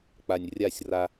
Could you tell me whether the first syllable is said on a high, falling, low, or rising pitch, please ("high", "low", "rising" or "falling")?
low